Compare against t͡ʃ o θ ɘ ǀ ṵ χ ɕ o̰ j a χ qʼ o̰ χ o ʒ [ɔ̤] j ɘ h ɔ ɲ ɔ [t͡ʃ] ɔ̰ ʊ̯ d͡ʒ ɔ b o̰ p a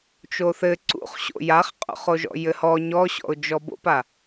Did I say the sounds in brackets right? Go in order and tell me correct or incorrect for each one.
incorrect, incorrect

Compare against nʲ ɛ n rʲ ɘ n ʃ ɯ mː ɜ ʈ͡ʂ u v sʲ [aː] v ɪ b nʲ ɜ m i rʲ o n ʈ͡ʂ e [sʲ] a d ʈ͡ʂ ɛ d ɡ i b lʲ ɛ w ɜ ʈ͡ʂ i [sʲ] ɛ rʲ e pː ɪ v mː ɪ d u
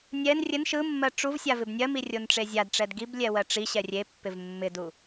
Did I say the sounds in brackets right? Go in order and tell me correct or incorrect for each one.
incorrect, incorrect, incorrect

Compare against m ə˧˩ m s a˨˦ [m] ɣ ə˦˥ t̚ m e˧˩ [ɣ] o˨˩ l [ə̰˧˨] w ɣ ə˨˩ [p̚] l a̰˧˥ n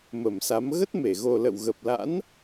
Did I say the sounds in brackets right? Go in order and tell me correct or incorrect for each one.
correct, correct, correct, correct

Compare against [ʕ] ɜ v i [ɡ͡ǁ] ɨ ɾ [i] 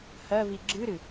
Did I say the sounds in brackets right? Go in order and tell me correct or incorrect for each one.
incorrect, correct, incorrect

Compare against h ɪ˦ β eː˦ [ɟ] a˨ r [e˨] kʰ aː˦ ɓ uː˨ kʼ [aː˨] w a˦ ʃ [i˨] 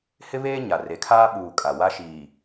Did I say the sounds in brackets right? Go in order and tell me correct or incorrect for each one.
incorrect, incorrect, incorrect, incorrect

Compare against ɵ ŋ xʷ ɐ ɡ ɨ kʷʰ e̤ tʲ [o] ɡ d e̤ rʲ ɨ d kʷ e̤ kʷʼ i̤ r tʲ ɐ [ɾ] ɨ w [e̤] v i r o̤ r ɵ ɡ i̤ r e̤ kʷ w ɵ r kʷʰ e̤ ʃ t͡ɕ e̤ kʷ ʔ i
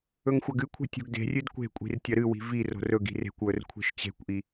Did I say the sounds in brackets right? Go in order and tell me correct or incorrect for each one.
incorrect, correct, incorrect

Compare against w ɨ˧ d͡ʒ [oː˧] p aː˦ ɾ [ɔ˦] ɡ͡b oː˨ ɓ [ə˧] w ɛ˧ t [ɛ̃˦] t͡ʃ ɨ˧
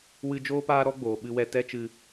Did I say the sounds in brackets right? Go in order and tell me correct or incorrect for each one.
incorrect, correct, incorrect, incorrect

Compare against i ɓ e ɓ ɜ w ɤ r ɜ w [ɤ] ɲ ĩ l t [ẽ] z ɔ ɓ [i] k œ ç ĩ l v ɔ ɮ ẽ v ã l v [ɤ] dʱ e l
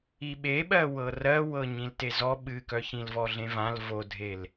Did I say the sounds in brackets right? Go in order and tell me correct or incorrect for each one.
correct, incorrect, incorrect, incorrect

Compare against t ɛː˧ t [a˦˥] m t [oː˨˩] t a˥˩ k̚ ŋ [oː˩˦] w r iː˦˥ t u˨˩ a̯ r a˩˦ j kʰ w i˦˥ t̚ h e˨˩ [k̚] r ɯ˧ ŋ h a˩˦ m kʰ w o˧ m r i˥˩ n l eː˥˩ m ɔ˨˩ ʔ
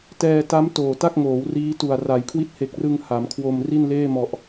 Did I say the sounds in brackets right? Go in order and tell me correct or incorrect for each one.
correct, correct, correct, correct

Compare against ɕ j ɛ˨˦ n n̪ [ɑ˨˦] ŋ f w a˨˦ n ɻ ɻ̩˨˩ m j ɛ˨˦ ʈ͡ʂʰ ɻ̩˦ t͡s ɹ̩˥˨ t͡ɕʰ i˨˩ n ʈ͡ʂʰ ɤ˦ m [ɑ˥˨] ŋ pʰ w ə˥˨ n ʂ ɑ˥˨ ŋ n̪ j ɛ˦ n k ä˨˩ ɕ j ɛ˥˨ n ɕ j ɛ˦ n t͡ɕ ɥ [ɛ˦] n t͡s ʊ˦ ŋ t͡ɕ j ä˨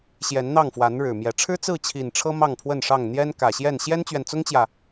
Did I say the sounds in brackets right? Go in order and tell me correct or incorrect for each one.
incorrect, correct, incorrect

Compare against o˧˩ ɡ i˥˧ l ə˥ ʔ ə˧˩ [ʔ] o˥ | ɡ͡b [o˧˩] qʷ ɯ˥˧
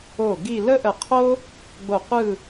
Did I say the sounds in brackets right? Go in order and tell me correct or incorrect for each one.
incorrect, correct

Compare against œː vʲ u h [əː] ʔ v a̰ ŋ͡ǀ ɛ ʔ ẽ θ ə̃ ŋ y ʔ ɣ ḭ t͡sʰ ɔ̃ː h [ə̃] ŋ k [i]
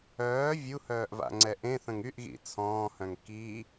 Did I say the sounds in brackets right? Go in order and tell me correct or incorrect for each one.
incorrect, incorrect, correct

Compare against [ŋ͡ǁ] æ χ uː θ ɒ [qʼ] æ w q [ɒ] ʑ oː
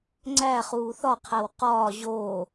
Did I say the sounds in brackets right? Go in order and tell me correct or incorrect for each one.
incorrect, incorrect, incorrect

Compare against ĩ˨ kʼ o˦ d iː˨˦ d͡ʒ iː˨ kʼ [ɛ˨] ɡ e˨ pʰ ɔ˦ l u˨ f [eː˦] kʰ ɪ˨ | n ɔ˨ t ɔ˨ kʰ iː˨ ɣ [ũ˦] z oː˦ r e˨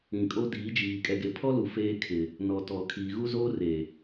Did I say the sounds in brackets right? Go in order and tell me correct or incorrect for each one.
correct, correct, incorrect

